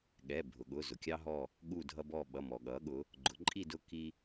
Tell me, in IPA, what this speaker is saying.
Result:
ɠɛ˩˧˩bʱʊ˩ɠʊ˩˧˩ zʊ˩kʲɑ˦ɦɔ˦˨ | ɠu˦˨dʱʌ˦bɔ˦˨ ɓʌ˩˧˩mɔ˩ɠʌ˩˧ɠʊ˩˧ | ɡ͡ǃʊ˩˧ǃʼi˦˨dʊ˦˨ ki˦

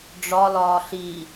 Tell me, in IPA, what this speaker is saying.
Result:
ɖ͡ʐɒlɒː ɬi

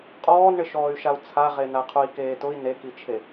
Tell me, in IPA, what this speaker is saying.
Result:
qʼɔːnɳɪʃɔːy̯ʃau̯ t͡sʰaʁena qʰui̯keːtʊi̯ nekit͡ʃʰe

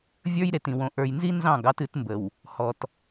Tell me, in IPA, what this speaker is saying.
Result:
vʲə˞˦jɾe˨tĩ˨ wõ˨ ʔə˞˨jnzi˦ nzɑ̃˦˨ɡ ɑ˦tɨ˨˦tmbə˨w | hɔ˨t

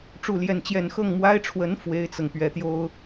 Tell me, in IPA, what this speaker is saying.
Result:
ʈ͡ʂu˥˧ljɛ˥˧nt͡ɕjɛ˥˧n xɤ˥˩ŋmwa˥ɪ̯ʈ͡ʂʰwə˧˥n fwe˥ɪ̯t͡sɤ˨ŋ pɥɛ˧˥t̪jo˥ʊ̯

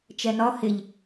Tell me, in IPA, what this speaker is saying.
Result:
t͡ʃɛnɒ hɪʎ

